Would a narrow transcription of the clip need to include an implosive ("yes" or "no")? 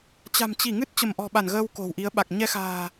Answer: yes